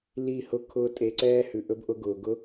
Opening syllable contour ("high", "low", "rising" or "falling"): falling